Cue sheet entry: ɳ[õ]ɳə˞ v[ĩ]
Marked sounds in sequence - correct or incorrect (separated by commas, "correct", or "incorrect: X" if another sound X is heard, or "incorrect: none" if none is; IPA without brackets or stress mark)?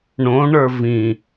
correct, correct